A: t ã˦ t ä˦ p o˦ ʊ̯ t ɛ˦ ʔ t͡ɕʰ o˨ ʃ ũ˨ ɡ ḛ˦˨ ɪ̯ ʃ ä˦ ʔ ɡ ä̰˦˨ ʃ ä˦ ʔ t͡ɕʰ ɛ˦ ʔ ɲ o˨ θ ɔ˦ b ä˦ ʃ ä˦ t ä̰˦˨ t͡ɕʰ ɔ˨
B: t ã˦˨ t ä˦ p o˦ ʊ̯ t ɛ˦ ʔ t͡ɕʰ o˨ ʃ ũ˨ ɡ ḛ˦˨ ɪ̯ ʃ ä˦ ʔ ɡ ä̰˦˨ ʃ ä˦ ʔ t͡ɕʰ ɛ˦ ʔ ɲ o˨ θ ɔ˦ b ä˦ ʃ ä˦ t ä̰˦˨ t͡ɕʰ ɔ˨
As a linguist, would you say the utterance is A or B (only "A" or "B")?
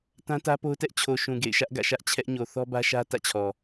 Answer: A